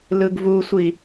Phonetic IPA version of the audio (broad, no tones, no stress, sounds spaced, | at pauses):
l ɯ ɡ v u sʷ i